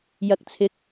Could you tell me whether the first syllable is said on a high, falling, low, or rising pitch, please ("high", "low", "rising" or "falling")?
rising